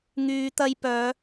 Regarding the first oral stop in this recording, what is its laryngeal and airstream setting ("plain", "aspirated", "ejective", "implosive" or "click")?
plain